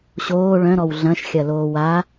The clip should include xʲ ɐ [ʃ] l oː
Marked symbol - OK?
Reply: no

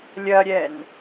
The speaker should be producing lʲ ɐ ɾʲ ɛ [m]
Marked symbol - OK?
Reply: no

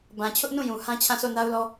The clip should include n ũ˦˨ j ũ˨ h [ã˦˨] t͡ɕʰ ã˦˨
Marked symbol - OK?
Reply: no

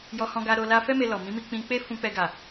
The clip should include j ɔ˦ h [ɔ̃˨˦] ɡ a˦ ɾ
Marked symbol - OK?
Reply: no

